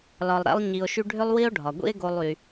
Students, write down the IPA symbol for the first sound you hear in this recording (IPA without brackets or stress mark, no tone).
l